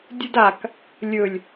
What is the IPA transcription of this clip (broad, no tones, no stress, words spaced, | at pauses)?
dʲɨdak | lʲɵlʲ